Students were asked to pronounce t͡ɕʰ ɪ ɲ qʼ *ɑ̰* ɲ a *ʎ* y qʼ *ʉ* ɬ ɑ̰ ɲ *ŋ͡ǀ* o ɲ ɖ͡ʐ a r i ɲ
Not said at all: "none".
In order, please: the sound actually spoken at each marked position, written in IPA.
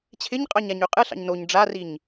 ɑ, ɲ, ɨ, n

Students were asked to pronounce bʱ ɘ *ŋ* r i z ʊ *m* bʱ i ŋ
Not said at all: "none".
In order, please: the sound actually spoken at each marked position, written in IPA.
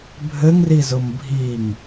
ŋ, m

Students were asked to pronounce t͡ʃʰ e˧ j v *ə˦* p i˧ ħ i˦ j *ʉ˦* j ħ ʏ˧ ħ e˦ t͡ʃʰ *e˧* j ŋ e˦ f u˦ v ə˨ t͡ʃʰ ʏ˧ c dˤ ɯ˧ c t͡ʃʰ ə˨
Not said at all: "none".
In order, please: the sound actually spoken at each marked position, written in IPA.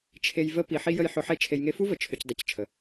ə˦, ə˦, e˧

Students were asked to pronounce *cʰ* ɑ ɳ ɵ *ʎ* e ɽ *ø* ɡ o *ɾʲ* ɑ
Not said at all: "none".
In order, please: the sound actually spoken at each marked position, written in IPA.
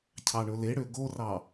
cʰ, l, ø, r

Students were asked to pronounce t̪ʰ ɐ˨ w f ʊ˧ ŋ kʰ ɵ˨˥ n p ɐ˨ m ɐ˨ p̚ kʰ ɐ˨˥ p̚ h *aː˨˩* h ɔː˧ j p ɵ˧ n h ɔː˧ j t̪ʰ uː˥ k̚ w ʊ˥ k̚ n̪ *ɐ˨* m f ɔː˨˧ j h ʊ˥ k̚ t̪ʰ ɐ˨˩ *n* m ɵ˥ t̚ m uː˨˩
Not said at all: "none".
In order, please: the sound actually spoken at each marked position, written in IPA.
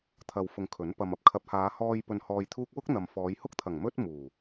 aː˨˧, ɐ˨, ŋ

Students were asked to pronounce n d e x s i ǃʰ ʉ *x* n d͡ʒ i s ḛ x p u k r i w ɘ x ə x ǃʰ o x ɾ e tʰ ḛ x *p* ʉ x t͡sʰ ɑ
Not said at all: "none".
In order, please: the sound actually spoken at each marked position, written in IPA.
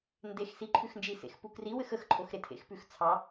x, p

